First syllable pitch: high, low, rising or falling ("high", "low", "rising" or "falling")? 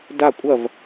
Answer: falling